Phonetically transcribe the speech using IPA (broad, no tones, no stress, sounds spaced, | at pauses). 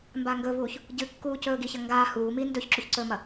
m b a ŋ ɡ ɵ v uː ç | ɟ ɨ kː uː c ɵː ɡ i ç ɐ ŋ ɡ aː h uː m iː n d ɵ ç ǁ ʉ ç ǀ ɵː m ɐ